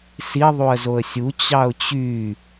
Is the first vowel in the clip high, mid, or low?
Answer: high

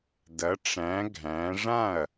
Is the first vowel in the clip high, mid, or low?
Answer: low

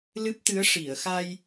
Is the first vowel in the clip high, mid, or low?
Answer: high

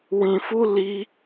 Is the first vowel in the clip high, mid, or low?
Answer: high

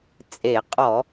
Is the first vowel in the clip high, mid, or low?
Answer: mid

